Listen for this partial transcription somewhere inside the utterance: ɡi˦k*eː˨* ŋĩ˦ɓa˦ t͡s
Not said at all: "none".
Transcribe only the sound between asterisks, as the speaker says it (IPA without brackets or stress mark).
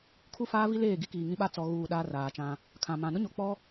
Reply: iː˨